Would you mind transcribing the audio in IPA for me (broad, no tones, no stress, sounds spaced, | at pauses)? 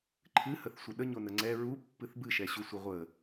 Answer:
ǃʰ ɨ h ə θ sʷ ə ɗ ə ɲ o n ə ŋ͡ǀ ɛ ɹ u pː ɨ θ b ɨ ʃ ɛ ɕ u sʷ ə ʁʷ ə